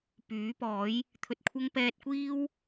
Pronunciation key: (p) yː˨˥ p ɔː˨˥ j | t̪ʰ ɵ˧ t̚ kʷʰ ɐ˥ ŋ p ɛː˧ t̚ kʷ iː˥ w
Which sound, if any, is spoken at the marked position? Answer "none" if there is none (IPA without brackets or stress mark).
p